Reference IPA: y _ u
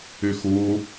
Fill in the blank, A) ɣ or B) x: B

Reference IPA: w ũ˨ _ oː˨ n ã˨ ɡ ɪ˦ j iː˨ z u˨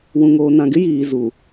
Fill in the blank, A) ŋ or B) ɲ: A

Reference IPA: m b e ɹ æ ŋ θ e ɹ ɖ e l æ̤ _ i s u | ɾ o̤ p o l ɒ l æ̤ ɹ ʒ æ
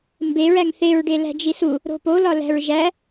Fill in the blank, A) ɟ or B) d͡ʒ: B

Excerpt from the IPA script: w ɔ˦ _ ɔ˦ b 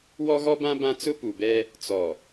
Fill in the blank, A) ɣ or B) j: A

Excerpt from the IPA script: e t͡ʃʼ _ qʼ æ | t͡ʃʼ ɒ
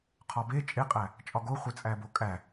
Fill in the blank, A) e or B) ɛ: A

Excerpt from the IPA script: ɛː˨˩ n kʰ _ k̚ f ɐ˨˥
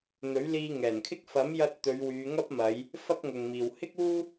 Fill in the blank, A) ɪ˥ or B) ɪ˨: A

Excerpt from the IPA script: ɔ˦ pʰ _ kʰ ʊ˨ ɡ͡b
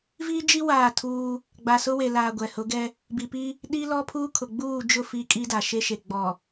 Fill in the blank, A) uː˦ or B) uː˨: A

